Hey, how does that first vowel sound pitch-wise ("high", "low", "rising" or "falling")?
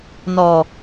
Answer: low